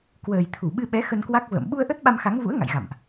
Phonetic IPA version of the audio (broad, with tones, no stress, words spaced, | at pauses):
kwəː˨˩jt̪ʰu˧˩ ɓɨ˧ɓɛ˨˦ xə˧nkwa˦˥k̚ və̰ː˧˨m ɓu˧ə̯ʔə˦˥t̚ ɓa˧mxa˨˦ŋvṵ˧˥ə̯ ŋa̰˧˨jɣa̰˧˨mʔ